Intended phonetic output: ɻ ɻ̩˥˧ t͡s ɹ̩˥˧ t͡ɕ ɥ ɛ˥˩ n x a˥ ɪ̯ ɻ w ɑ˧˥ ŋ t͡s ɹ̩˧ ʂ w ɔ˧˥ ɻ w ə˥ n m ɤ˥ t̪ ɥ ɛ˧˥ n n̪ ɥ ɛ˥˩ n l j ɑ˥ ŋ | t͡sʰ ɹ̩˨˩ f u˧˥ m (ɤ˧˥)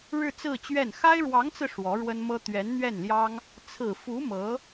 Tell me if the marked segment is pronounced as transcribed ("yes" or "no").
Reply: yes